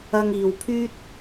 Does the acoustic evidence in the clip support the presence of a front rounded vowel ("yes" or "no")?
yes